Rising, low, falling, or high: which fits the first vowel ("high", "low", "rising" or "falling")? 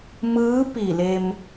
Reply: rising